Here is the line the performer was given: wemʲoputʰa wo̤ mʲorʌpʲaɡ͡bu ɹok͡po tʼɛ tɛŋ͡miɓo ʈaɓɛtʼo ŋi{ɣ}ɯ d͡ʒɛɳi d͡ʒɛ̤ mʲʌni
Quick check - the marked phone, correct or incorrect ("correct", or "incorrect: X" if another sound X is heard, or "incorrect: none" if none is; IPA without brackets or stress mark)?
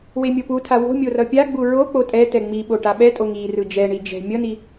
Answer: incorrect: r